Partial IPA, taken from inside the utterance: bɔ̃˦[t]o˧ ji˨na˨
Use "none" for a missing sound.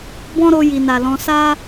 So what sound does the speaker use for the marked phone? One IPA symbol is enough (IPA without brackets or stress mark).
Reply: ɾ